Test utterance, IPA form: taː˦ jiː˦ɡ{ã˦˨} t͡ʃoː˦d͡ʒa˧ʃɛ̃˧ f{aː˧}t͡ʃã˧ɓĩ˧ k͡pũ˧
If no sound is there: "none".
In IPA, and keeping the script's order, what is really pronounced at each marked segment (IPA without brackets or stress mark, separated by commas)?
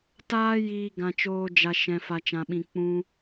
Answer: ã˧, a˧